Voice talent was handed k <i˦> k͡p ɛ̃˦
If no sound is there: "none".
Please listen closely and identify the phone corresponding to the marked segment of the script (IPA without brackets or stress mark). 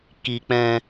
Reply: i˦